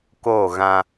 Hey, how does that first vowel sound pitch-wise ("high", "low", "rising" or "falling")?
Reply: falling